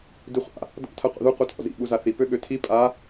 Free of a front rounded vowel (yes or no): no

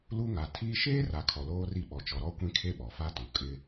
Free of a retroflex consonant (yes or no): yes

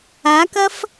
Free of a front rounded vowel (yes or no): yes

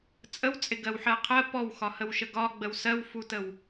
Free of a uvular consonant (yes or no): no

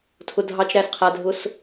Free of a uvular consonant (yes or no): no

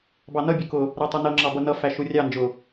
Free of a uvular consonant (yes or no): yes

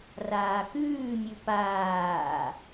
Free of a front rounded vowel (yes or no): yes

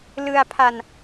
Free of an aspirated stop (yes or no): no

